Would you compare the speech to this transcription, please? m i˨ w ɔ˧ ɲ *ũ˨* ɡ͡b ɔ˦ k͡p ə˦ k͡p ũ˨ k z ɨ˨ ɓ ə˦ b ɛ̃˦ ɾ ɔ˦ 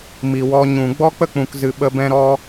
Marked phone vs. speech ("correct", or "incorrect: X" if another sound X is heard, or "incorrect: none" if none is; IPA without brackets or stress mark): correct